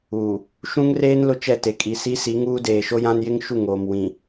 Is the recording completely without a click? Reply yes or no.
yes